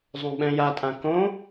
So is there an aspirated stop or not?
no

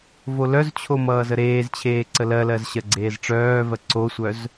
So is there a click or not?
yes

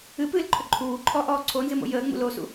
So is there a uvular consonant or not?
no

